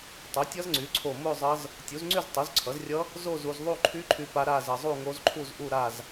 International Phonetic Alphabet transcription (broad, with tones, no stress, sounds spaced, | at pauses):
tˤ o˩˥ tʲ ʌ˦˥ z ŋ͡ǀ y˩˥ ǀʰ o˧˩ m o˥˧ zˤ ʌ˦˥ z | tʲ u˩˥ z ŋ͡ǀ y˥˧ z tˤ u˩˥ z ǀʰ ʌ˩˥ z rʲ ʌ˦˥ | z o˥˧ z u˧ z ðˤ u˥˧ ǃʰ y˦˥ ǃʰ y˧ p a˧ ɾ a˥˧ z ʌ˧ zˤ u˥˧ ŋ o˦˥ z ǃʰ u˥˧ z ʔ u˥˧ ɾ a˥˧ z